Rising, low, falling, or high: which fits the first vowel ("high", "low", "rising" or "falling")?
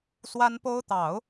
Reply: high